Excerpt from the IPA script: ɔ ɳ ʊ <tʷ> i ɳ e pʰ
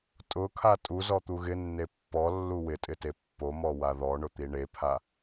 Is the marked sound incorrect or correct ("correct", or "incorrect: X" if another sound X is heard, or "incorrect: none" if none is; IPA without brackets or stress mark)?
incorrect: t̪